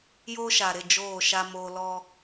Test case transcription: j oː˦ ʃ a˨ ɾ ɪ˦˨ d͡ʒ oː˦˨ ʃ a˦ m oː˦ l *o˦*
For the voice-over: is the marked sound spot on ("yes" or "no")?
no